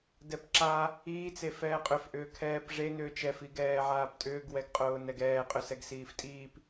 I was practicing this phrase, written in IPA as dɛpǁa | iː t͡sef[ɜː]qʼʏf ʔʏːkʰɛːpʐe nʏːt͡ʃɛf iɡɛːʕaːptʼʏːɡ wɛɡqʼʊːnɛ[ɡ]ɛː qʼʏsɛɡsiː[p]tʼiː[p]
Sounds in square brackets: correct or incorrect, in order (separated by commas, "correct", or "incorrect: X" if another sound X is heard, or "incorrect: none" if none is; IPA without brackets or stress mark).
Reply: incorrect: ɛː, correct, incorrect: f, correct